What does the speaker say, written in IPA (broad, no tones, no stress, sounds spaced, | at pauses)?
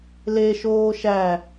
l e ʃ oː ʃ æ